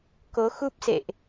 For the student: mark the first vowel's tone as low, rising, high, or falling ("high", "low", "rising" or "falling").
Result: rising